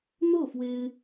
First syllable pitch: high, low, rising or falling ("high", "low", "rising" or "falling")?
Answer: falling